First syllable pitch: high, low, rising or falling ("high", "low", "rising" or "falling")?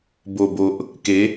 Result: low